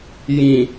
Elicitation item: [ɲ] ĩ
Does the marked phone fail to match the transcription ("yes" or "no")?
yes